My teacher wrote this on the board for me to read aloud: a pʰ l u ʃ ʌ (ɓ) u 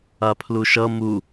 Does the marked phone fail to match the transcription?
yes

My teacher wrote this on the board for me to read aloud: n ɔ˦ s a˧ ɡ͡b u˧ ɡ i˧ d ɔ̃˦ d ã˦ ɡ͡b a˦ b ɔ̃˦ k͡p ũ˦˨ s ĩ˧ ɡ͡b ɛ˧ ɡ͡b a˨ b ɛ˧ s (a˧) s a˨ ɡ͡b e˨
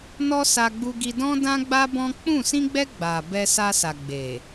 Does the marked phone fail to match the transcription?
no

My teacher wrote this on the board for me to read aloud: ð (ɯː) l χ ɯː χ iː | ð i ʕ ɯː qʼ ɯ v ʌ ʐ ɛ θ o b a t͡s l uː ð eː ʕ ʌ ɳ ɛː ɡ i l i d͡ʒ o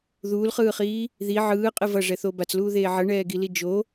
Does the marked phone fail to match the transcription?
yes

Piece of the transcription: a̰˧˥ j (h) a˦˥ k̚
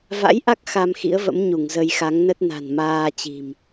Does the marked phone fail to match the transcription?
yes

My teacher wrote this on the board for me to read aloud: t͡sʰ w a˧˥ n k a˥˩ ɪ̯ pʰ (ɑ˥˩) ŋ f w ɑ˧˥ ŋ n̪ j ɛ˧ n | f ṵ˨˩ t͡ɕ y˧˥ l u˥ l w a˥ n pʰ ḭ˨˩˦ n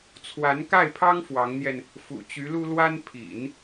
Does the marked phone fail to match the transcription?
yes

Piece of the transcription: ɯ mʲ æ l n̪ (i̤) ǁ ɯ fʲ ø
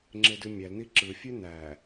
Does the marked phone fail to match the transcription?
yes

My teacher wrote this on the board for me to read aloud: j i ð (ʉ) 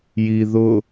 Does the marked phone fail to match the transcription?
yes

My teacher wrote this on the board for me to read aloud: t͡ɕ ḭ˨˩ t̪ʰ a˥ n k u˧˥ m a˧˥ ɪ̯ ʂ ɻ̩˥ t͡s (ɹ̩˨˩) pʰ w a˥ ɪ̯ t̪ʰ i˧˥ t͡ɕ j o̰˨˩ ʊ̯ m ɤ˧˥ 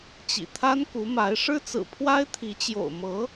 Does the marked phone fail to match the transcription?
no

